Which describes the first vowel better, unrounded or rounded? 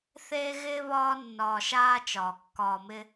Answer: unrounded